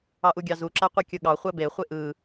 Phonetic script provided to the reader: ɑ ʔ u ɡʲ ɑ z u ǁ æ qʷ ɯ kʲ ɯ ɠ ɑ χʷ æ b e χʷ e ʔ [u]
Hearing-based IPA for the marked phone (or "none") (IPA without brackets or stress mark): ɯ